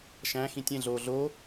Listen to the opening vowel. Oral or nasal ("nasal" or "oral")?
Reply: nasal